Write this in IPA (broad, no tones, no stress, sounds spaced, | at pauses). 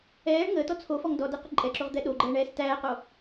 ɛː ɳ ŋ əː t ɔ t͡sʰ o f ɔ ŋ d ɔ d ɛ q ə ǃʼ ɛ ǁ o ʁ d̪ ɛ ɗ o ɡ͡ǃ ɛː ɳ ɛː s t æː q o